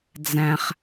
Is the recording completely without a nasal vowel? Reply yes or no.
no